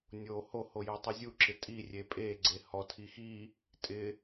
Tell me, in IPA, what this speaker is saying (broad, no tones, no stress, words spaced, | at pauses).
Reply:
nʲo hoho jotˤizʲuǁɪ tʼi rʲepʼeɡ͡ǀe hɔtʰi xi | tʼɪ